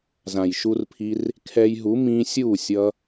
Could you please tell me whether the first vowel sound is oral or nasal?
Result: nasal